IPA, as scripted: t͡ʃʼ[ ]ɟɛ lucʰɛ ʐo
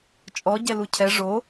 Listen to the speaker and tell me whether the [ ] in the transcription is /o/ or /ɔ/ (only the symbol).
ɔ